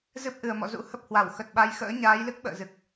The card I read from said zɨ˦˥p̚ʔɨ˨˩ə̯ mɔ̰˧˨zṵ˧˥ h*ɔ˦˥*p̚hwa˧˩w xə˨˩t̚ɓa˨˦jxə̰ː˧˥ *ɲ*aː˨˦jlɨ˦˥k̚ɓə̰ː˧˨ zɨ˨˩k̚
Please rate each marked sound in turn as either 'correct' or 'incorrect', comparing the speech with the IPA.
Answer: incorrect, correct

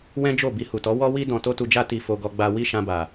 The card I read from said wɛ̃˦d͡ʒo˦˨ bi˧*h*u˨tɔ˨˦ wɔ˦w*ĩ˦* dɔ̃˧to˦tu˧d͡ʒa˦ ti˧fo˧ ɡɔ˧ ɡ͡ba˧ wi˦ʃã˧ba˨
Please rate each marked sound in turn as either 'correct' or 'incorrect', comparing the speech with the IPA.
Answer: correct, incorrect

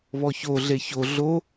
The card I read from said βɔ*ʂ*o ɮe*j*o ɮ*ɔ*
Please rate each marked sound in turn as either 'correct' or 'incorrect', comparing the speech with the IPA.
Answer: incorrect, incorrect, incorrect

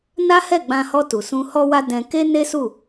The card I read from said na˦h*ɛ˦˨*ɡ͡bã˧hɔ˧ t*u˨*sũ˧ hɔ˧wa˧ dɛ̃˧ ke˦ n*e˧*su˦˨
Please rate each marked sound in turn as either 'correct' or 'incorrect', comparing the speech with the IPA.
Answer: correct, correct, incorrect

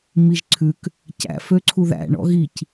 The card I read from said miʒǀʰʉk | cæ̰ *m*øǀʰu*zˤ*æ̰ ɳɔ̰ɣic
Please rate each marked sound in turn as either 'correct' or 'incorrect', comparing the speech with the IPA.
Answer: incorrect, incorrect

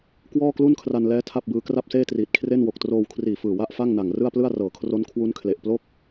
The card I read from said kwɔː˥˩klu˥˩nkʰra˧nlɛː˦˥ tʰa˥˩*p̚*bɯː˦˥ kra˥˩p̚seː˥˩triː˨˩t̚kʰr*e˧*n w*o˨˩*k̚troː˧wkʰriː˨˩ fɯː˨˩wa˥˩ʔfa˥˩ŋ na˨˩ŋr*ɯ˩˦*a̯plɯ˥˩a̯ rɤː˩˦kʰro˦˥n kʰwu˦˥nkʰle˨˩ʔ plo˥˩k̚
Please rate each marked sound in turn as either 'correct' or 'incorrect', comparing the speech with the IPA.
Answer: correct, incorrect, correct, incorrect

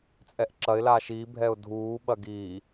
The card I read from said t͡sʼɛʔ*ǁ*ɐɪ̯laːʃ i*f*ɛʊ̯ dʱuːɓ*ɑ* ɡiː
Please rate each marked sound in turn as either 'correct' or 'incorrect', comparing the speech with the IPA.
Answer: correct, incorrect, incorrect

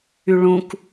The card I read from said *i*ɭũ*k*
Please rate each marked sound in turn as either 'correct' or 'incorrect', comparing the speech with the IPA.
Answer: incorrect, correct

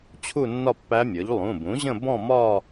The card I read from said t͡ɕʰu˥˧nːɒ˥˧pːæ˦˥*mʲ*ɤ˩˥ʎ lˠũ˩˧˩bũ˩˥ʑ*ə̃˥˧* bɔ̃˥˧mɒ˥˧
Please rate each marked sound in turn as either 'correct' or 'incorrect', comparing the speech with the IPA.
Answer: correct, correct

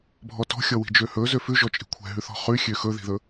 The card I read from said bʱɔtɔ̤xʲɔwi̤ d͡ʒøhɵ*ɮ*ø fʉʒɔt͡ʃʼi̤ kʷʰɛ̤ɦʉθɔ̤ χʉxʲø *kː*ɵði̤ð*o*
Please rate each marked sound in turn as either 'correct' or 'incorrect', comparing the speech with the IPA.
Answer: incorrect, incorrect, incorrect

